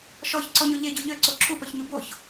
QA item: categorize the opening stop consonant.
click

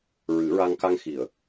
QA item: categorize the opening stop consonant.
plain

